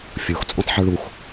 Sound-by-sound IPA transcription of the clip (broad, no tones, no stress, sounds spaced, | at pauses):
fʲ o x t͡sʼ ũ tˤ ħ ʉ ɭ u x